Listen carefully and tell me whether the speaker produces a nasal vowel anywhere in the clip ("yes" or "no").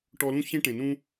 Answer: yes